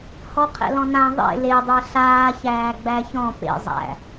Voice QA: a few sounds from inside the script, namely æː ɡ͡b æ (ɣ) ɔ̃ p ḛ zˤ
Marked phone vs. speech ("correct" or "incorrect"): incorrect